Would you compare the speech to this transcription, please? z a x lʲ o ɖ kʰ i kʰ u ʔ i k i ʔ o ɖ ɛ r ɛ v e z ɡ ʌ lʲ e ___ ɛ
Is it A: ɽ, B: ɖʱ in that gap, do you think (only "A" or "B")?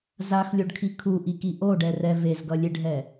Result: B